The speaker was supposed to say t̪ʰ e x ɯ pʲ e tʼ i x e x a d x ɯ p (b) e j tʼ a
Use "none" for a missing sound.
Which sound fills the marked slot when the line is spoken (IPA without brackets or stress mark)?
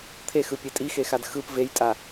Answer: v